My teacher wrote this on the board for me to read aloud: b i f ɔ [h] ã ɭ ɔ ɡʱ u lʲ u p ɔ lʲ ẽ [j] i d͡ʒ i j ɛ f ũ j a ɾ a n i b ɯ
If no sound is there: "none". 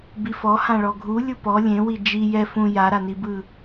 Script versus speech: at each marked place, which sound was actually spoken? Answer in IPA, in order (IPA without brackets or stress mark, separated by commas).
h, w